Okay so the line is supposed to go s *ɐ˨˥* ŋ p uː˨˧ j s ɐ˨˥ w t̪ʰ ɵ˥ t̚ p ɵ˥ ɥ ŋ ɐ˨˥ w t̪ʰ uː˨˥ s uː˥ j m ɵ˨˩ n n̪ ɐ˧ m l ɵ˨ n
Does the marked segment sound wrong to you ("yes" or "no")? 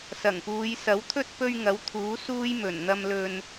yes